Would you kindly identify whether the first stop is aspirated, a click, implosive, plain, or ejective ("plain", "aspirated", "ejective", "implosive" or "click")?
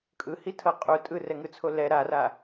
ejective